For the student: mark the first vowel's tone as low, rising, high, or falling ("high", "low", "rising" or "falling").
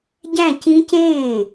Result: falling